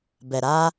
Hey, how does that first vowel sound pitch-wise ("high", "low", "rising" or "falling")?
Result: low